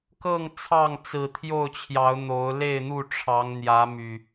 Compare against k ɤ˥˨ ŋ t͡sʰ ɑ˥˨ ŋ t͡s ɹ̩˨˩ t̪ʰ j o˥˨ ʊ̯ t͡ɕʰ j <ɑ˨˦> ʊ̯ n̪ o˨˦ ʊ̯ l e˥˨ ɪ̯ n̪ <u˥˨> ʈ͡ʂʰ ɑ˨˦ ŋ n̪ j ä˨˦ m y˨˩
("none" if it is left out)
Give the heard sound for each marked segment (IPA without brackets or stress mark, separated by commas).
ɑ˨˦, u˥˨